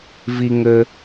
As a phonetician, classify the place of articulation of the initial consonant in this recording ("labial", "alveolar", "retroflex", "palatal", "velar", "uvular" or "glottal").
labial